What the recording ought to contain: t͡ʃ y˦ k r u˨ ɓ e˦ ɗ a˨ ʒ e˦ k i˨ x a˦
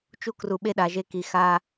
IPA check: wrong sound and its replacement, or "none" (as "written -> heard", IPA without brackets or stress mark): y˦ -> u˦